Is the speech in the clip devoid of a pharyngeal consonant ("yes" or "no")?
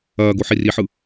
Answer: no